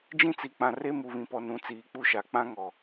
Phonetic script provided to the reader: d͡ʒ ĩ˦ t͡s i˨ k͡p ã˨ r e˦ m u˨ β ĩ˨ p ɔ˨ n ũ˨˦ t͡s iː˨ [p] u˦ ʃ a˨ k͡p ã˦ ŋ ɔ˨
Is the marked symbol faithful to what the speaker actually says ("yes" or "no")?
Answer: no